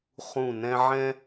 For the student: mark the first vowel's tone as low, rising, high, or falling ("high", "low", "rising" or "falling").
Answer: low